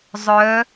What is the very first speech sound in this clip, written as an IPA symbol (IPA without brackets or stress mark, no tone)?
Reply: zˤ